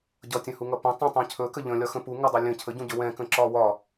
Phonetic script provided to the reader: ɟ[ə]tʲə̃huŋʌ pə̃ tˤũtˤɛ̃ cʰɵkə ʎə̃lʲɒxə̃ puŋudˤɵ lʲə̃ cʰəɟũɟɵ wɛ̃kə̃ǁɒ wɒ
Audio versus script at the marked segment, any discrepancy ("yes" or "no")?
yes